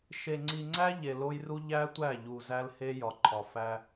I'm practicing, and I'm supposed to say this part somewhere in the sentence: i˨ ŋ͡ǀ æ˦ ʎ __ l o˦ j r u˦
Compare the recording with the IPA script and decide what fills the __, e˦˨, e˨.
e˨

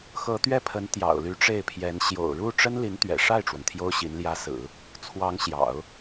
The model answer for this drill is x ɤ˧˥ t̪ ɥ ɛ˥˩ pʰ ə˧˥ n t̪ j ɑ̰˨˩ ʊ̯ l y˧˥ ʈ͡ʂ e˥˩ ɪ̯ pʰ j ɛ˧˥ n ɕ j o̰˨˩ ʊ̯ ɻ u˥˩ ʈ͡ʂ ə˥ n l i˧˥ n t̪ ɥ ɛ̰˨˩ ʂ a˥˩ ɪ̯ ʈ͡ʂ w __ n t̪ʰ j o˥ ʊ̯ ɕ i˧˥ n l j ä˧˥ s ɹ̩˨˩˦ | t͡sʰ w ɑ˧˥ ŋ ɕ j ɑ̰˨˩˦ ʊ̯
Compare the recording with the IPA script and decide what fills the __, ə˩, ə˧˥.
ə˩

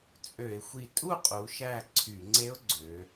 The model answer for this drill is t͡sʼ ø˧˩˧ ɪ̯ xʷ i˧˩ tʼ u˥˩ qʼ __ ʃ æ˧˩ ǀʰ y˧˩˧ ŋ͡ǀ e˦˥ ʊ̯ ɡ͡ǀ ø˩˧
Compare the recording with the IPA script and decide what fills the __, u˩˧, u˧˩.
u˩˧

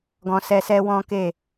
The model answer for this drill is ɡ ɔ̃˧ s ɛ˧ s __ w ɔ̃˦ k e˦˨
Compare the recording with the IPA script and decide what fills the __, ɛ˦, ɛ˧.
ɛ˦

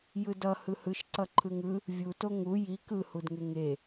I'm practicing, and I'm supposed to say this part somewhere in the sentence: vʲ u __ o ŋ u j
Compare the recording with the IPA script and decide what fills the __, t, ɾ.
t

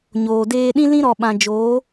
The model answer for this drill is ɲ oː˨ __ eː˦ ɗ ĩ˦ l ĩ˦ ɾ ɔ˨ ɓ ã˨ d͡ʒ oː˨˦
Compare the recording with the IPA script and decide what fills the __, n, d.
d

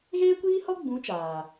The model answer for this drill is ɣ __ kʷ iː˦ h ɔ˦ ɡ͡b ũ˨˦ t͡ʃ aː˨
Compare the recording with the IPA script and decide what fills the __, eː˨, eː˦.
eː˦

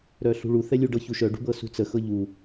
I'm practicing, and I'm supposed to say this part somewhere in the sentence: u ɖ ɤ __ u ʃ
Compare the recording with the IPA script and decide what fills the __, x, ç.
ç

